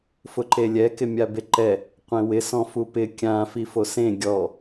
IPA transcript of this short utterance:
fʊǃelʲɛ kɪmʲabeǃɛ | qʷẽwɪ sɔ̃fupɪ kʲã fifosẽ ɡʲɔ

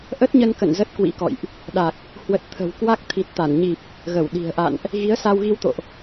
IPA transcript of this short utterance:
ʔə˦˥t̚ɲə˧nkə̰˧˨n zə˦˥t̚kwḭ˧˥kɔ̰˧˨jʔ | ɗa˨˩k̚ | hwə˨˩t̚ t̪ʰə̤˨˩w kwa˦˥k̚ t̪ʰi˨˩t̚t̪a˧˩nɲi˨˩p̚ | ɣə˧˩wɗi̤˨˩ə̯ʔa̰˧˨nʔ | ɣi˨˦ə̯sa˧wɣi˧wt̪o̰˧˨ʔ

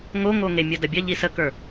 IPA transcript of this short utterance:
ŋoŋoŋe mʲɜdɐbʲɐ ʎisəkə˞

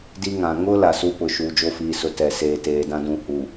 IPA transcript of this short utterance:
di˦ŋã˨ ŋʊ˦ la˨su˦pʊ˨ ʃuː˨d͡ʒo˦fiː˨ sʊ˨ tɛ˨ seː˨teː˨dã˦ dũ˨ hu˨

